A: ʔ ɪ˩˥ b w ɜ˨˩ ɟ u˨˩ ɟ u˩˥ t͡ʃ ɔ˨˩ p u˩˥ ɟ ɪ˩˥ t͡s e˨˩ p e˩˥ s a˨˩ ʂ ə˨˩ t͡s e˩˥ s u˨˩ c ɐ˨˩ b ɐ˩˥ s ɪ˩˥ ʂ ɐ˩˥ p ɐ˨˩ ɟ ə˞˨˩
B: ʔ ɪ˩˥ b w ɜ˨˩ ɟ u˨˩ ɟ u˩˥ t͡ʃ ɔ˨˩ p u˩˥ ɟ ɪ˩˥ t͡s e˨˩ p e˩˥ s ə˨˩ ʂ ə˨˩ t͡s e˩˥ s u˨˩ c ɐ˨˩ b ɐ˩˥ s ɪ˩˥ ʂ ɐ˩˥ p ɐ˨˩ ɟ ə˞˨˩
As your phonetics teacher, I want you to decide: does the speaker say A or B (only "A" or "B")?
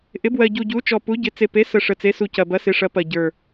B